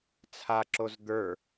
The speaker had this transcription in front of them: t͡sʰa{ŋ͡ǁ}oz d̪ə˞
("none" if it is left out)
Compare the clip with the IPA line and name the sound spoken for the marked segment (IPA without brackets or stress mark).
ǁ